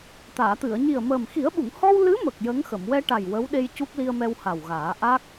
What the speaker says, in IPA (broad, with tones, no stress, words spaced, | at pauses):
t̪aː˨˩˨t̪ɨ˨˩˨ə̯ɲi˨˩ə̯məː˨˩m xi˨˩˦ə̯ɓu˨˩˨ŋhɔ˧w lɨ˧˥mə˨˩k̚ jə˧˥ŋxə˨˩˨m wɛ˧ʈa˨˩j wə˧˥wɗe˧jcu˦˥k̚ li˧ə̯mɛ˧wha˨˩wɣaː˨˩˦ ʔa˦˥k̚